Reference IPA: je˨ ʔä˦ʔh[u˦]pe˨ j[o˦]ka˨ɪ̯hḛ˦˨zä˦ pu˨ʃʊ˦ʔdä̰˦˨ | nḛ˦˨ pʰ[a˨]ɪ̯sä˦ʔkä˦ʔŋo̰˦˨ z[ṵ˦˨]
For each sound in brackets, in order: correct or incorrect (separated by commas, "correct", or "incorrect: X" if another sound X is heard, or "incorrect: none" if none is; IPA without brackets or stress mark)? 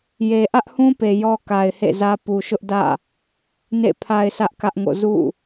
incorrect: ũ˦, incorrect: ɔ˦, incorrect: a˦, correct